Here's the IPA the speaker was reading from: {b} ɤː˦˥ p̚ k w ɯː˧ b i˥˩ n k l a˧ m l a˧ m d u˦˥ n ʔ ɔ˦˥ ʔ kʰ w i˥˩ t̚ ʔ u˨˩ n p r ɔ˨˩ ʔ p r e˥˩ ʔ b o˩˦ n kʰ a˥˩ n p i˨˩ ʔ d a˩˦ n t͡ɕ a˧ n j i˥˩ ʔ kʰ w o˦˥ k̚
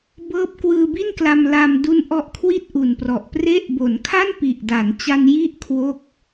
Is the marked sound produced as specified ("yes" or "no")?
yes